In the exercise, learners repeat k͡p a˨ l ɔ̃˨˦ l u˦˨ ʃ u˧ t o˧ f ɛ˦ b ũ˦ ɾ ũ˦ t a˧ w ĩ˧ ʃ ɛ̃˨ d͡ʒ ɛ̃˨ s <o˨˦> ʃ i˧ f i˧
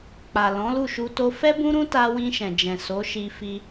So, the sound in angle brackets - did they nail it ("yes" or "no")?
yes